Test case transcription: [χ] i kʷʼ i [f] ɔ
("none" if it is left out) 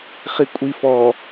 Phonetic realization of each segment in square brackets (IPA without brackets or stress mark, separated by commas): χ, f